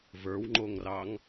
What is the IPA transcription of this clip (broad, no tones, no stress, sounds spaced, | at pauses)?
v ə˞ w ŋ͡ǃ o ŋ r ɑ ŋ